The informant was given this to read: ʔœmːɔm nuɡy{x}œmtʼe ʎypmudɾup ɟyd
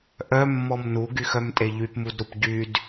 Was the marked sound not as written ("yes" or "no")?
no